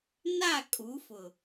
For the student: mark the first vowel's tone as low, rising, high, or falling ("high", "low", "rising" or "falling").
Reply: falling